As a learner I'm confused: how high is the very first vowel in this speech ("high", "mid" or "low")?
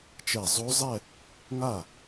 mid